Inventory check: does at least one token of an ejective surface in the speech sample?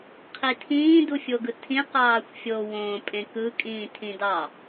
yes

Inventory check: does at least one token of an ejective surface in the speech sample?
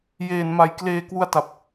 no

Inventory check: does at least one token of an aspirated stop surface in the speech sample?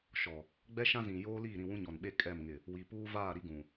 no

